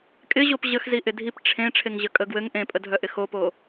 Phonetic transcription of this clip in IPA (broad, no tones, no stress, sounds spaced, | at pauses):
kʼ ɪ ʑ o p ʑ ə x z i ʔ ɪ dʱ i p ʈ͡ʂʰ ẽ ʈ͡ʂʰ e ŋ ʑ ə kʼ ə ɡ w ɘ ŋ ʔ ẽ pʼ ə dʱ œ ʔ ɪ x o p o